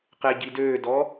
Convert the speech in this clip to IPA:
qeɟidøːdɔ

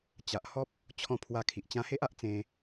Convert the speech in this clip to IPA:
t͡ɕa˨ʔhɔ˦p̚ | t͡ɕʰɔ̃˦ pʰwa˧kʰi˨ʔ t͡ɕã˧he˦ʔa˦ʔ t͡sẽ˧

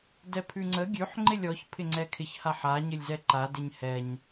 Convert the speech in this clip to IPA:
dɛpʰʉŋ͡ǀə ɡʲʉħ ŋ͡ǃɪlʲɔç pʰɪŋ͡ǀɛkʰɪç haħa ɲɪlʲzɛǃa dɪɲhɛɲ

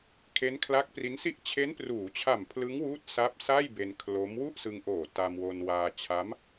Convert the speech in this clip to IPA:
kʰe˦˥nkʰla˦˥k̚pri˦˥n si˥˩ʔ t͡ɕʰe˦˥npruː˩˦t͡ɕʰa˨˩m pʰlɯ˦˥ŋwuː˦˥t̚ sa˦˥p̚ sa˥˩jbe˧n kʰlo˦˥m wu˥˩ʔsɯ˧ŋʔoː˨˩ ta˧mwo˧n waː˧t͡ɕʰa˦˥m

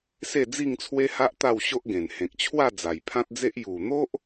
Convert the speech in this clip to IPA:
se˥˧d͡zi˥˧ŋt͡sʰwe˦ha˦ʔ t̪a˥˧wɕo˦ʔɡẽ˨˩n hẽ˨k̚t͡ɕʰwa˥˧ d͡za˨˩jpʰã˦t̚d͡ze˦ʔ ju˨˩n̪o˦ʔ

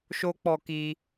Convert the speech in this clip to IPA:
ʃo˦k͡pɔ˧kiː˧

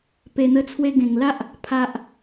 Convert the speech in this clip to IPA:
pe˨˩n̪ə˧t͡sʰwe˧ ɡẽ˨˩ŋla˦ʔ | pʰa˨ʔ

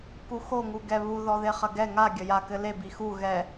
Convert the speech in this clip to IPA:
kuxoŋu ɡɛβu ðɔðeχɐɡɛ ŋa ɡʲɐja kɘle bixu ɣɛ

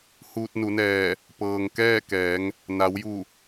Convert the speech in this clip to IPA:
huː˧t̚nu˩˧nɛː˧˩ | pɤː˩ŋ kɛː˥˨kɛː˩˧ŋ | na˩˧wju˧˩

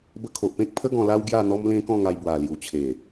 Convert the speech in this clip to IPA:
bə˧kʰo˨ʔpẽ˦k̚pʰə˦ ɡɔ̃˧ la˦w ɡja˥˧n̪ɔ˦m lẽ˦kɔ̃˥˧ŋa˧jbwa˨˩ lju˨˩t͡ɕʰe˨˩

